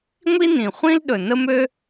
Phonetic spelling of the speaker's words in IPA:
ŋʷ i˥ n ĩ˩ χʷ ĩ˥ l ɗ ɵ˩ n ə˥ m ø˥

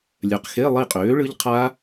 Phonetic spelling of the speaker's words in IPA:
lʲ œ˨ q x e˧˥˧ lˠ i˦˨ qʼ øː˩˥ ɭ ɯ˦˥ ʎ qʰ a˦˥

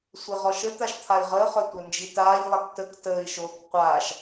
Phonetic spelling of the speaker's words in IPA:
sʷ e ʁ ɔ ʃ ə t̪ a ʃ t̪ʰ a i̯ ʁ əː χ œ tʷ œ n d͡ʒ i t aː ʎ lˠ a k t ə k t əː i̯ ʃ oː k qʷ aː ʃ

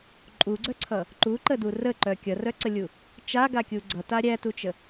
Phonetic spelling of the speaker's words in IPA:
ǃʼ u ɡ͡ǀ œ ǀʰ ʌ | ǃ u ǃ ə d u r ə ǃ œ kʲ ʌ r œ ǀ ə lʲ u | t͡ʃ a ɡ a kʲ u ɡ͡ǀ ʌ t a ɾʲ æ t u t͡ʃ ə

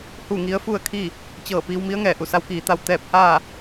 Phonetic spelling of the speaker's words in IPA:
h u˥˨ ŋ i˧˥ ə̯ f u˥˨ ə̯ kʰ i˥˨ | t͡ɕ ɤː˧˩ p iː˧ w m i˧˥ ə̯ ŋ ɛː˩ ʔ u˧˩ s a˧˥ w k iː˩ t̪ a˥˨ w t̪ ɛː˥˨ p̚ h aː˥˨

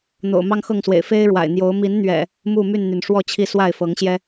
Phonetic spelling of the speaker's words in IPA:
n̪ o̰˨˩ ʊ̯ m ɑ˦ ŋ x ɤ˥˨ ŋ s w ḛ˨˩ ɪ̯ f e˦ ɪ̯ ɻ w a̰˨˩ ɪ̯ n̪ j o˨˦ ʊ̯ m i˨˦ n n̪ ɥ ɛ̰˨˩ | m u˥˨ m y˥˨ n n̪ y˩ n ʂ w ɔ˥˨ t͡ɕʰ i˥˨ s w a˥˨ ɪ̯ f ɤ˨˦ ŋ ɕ j ɛ˦

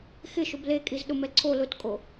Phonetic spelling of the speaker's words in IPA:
x ɪ ʃ ʊ b l e kʼ i z ɗ ʊ m ɛ ǀʰ o l ʊ t kʼ o

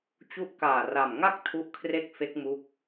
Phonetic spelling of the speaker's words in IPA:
t͡ɕ u˦˥ ʔ k aː˨˩ r a˨˩ m ŋ a˥˩ k̚ tʰ u˦˥ ʔ kʰ r e˥˩ k̚ f e˦˥ k̚ m u˦˥ k̚

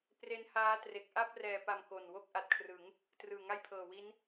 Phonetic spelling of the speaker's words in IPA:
p r e˦˥ n h aː˦˥ t r e˨˩ k̚ ʔ a˥˩ p̚ r ɛː˨˩ p a˨˩ m k o˨˩ n w o˥˩ k̚ ʔ a˨˩ t̚ kʰ r ɯ˩˦ ŋ | t r ɯː˨˩ ŋ a˥˩ j pʰ ɤː˨˩ w i˦˥ n

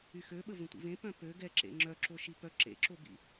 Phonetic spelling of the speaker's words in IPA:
y x ø ɓ ə v ə̃ tʷ ḭ v ẽ p œ̃ p ø ɡ ɛ ǁ ḛ ŋ͡ǁ œ ǁ o ʃ i p œ ǁ ḛ ǁ o b ḭ

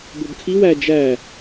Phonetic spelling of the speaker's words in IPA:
b o b kʰ i w æ d͡ʒ æ

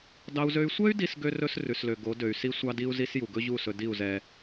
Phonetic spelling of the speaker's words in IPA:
d ɑ˦ u̯ z ø˦ y̯ sʷ ɛ˦ y̯ d i˧ s ɡ ø˦ r ɵ˦ s r ʉ˨ s l ø˨ ɡ o˨˦ d ø˨ y̯ s i˦ sʷ ɑ˦ d i˦ u̯ z i˦ s j u˨ ɡ ɵ˦ ʑ u˦˨ s ɵ˧ d i˦˨ u̯ z ɛ˧

